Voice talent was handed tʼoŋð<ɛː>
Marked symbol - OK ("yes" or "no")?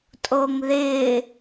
no